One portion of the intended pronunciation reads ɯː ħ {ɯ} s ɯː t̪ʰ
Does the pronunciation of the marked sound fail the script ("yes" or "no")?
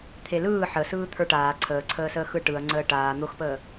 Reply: yes